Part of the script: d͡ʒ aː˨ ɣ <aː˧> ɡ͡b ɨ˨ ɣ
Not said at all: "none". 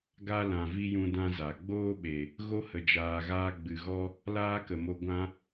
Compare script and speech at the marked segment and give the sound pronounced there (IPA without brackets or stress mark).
aː˧